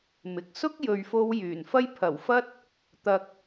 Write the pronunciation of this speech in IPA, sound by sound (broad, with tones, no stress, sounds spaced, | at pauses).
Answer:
m ɪ˨ k̚ s ʊ˥ k̚ j ɵ˨ ɥ f o˧ w j yː˨˩ n f ɐ˥ j pʰ ɐ˨˩ w f ɐ˥ t̚ | t̪ ɐ˧ k̚